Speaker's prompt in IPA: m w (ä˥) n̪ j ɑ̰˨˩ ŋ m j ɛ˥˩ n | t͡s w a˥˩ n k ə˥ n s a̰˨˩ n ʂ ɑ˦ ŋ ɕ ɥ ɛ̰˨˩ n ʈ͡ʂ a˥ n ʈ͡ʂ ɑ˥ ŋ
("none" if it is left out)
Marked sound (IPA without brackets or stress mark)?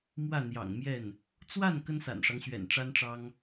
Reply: ä˥˩